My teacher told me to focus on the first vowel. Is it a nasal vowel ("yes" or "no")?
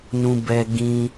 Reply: yes